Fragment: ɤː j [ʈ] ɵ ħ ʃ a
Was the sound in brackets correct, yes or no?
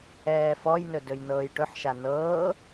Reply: yes